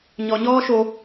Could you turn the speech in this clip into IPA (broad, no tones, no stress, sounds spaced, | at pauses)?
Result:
ɲ ɔ ɲ ɔː ʃ o